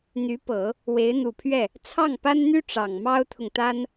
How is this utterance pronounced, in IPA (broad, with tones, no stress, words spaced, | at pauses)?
n̪y˧˥pɤ˨˩˦ | we˧˥ɪ̯n̪u˨˩pʰɥɛ˥˩ | t͡sʰɑ˥˩ŋpa˥nn̪y˥ ʈ͡ʂɑ˨˩ŋmɑ˥ʊ̯t̪ʰʊ˨ŋt̪a˥n